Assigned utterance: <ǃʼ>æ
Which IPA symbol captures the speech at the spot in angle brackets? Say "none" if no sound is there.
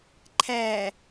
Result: ǃʰ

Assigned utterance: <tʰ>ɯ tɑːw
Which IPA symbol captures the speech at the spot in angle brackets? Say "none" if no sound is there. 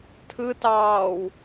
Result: tʰ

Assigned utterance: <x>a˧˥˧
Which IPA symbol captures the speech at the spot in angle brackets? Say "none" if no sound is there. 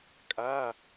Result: kʼ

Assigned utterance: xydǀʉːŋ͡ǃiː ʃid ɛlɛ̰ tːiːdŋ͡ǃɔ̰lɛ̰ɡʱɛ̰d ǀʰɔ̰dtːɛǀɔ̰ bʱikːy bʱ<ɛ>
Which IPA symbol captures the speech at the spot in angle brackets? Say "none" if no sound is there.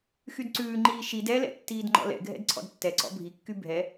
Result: ɛ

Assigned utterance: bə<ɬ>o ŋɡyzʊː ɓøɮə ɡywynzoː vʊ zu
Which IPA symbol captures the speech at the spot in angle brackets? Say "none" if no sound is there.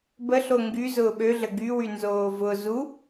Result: ɬ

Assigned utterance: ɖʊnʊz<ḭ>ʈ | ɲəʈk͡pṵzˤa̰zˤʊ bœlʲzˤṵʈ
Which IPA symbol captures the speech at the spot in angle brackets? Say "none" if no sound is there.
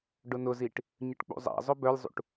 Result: i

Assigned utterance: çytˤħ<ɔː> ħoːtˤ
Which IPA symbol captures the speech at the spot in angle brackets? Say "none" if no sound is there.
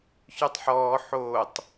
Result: ɔː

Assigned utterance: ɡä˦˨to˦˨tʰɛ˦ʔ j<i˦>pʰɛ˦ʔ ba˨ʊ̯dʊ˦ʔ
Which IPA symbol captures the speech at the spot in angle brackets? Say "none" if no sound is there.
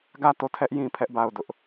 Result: ĩ˦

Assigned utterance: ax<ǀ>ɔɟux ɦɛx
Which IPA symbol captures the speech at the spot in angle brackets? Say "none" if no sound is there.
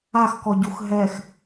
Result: k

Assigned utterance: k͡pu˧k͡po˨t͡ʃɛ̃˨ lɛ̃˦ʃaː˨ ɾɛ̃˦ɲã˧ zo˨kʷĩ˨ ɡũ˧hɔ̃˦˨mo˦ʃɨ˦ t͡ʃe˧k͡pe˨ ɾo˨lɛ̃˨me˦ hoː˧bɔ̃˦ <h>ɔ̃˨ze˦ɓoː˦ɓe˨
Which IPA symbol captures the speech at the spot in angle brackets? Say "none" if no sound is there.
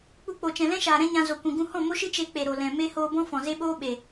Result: f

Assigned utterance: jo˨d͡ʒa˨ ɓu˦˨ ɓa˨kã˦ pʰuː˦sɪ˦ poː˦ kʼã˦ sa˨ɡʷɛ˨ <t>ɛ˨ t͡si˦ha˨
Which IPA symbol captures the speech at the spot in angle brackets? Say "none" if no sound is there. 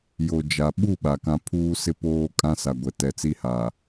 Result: t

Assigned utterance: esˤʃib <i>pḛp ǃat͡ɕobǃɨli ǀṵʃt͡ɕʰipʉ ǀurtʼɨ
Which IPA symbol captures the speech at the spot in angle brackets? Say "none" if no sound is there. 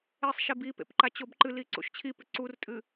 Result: i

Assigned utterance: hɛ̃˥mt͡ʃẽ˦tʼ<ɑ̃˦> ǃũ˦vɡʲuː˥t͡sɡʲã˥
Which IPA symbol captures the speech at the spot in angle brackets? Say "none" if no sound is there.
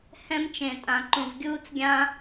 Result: ã˦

